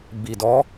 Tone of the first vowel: low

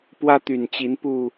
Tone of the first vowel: high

